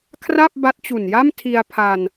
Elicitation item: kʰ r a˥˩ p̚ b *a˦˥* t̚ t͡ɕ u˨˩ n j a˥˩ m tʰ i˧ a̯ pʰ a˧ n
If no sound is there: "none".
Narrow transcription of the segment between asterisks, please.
a˦˥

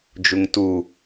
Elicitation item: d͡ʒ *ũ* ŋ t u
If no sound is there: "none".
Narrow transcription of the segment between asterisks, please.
u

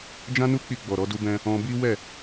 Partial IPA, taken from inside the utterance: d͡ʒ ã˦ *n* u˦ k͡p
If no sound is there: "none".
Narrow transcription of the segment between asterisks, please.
n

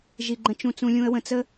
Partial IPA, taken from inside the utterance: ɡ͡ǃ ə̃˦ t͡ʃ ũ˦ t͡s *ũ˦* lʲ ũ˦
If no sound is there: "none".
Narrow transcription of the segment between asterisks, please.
ũ˦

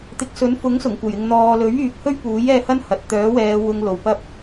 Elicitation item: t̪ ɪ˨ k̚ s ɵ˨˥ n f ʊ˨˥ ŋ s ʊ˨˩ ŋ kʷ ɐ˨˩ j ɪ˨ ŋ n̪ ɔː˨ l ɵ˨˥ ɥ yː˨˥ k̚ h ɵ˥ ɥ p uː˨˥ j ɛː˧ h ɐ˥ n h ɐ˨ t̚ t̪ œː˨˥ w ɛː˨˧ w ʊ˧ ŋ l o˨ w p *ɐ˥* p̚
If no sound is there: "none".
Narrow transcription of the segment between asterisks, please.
ɐ˥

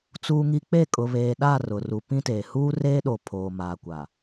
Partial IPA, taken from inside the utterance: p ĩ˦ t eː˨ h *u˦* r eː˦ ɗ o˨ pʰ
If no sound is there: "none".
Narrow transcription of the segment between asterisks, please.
uː˦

